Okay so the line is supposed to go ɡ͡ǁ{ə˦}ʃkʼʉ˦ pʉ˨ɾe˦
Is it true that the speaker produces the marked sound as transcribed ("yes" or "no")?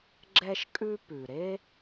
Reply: no